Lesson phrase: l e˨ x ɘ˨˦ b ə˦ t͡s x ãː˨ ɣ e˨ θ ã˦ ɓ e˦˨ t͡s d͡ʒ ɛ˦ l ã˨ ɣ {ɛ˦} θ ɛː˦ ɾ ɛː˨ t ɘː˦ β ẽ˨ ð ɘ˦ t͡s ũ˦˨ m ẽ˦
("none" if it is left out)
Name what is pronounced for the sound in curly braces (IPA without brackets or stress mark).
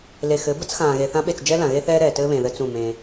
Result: e˦